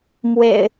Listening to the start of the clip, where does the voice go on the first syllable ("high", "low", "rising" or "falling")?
low